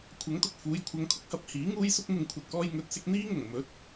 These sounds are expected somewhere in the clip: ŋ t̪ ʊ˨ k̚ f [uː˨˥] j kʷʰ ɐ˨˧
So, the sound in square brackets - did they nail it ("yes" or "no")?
no